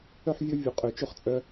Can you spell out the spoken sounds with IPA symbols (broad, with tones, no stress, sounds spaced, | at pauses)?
œ˦ ħ vʲ ɵ˦ vʲ u˨˩ qʼ ø˧˩˧ t͡ʃ ɵ˥˨ χ t͡sʼ œ˦